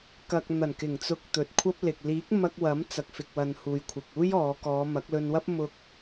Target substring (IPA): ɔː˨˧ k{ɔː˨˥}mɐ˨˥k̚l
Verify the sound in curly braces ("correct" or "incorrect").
incorrect